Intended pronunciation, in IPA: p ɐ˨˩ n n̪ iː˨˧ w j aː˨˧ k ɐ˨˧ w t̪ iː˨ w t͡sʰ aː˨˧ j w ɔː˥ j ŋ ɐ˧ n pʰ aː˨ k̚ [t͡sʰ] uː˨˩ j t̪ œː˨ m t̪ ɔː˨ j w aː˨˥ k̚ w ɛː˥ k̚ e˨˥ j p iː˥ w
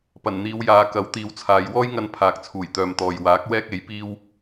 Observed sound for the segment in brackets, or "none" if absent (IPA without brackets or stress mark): t͡sʰ